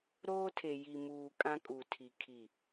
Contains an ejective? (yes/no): yes